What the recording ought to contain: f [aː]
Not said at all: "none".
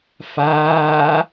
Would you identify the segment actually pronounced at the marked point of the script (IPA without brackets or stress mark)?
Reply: aː